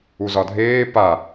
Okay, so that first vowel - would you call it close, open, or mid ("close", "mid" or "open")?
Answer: close